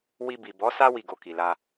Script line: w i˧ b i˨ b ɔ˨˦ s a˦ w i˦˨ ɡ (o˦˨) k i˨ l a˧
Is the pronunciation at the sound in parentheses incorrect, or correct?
incorrect